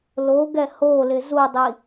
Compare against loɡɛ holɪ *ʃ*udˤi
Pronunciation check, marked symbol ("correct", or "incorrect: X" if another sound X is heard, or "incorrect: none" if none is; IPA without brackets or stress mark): incorrect: z